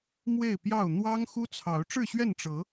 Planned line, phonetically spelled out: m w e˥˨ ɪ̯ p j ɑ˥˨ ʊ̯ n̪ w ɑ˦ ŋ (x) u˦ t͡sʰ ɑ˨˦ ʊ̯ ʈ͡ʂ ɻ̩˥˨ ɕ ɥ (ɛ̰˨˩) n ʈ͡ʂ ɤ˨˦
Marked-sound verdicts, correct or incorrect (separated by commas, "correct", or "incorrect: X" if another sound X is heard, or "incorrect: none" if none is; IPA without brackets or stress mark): correct, incorrect: ɛ˥˨